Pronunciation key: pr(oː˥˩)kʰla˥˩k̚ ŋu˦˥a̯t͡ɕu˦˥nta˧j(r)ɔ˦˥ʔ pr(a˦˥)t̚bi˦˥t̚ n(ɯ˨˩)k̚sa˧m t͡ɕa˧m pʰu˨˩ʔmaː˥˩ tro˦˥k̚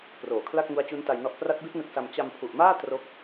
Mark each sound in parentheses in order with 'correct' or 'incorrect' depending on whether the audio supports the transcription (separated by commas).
incorrect, incorrect, correct, incorrect